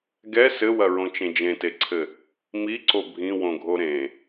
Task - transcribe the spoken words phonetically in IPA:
ɡɛ sɘwɐɹõt͡ʃẽ d͡ʒẽteǀʰɘ | miǀo bʱĩwõɡʱo ɾẽ

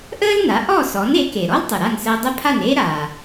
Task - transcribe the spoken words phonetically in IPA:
ʔəː˥lna˩˥ ʔɔ˥˩sɔ˩˥n e˩˥ke˩ ɾɔ˥ltˤə˩ ɾa˥˩nsəː˧dˤə˥˩ pʰa˥˩neː˥ɾaː˩

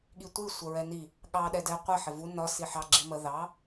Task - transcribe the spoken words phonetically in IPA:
ɠitʷi sʷəɹɛni | ɠɑ ɗɛdɛ qʷɪ ħɪvu nɒ siħɑ ɡ͡ǁimə ðɑ

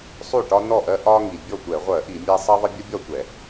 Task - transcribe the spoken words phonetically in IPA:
sˤu˥˩ʈɒ˦nɔ˥˩ʔɜ˦ ʔɒ˦ ŋi˩bʲɔ˥˩tʷɛ˧˩˧ʁʷɜ˧˩˧ ʔi˧˩˧mʲæ˦ sˤʌ˦ðˤə˦ bʲə˦bʲɒ˥˩tʷɛ˧˩˧

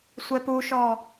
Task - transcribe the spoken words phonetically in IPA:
sʷɛpuʃɔ

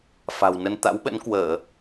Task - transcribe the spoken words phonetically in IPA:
fa̤˨˩wnə˧n t̪a̰˧˥wɓə̰˧˥nkwəː˧˩˨

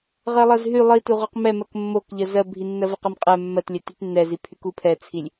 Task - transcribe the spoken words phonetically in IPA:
ʁɜlˠɜzɦy lˠituʁøq mɛmɜk mːokʎɜ zɜbʱi nːɜvɜqɛmqʼɛ mːɜtlʲɛ tytnːɛzipʰyk upʰɛt͡sʰilʲ

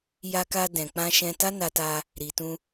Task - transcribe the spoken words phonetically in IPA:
ja˧ka˧ dɛ̃˨k͡pã˧ʃɛ̃˧ta˦ na˧ta˧ | ɾi˨tũ˧

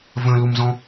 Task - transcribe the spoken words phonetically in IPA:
və̃lumzɔ̃

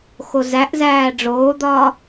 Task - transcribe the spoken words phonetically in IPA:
xozæʔzæː ɖ͡ʐoːd̪ɒː

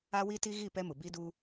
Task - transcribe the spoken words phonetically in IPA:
a˦wi˦ti˦ ɣi˦˨ pɛ˦mʊ˨ bi˦du˦

